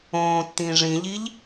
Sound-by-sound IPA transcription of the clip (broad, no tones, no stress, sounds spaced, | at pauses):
õː t t̪ ĩ ʐ ĩ ʎ i ʎ